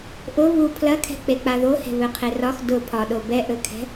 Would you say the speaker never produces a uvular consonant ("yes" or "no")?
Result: no